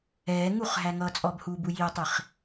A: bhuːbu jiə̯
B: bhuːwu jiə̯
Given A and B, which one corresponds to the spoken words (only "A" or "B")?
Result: A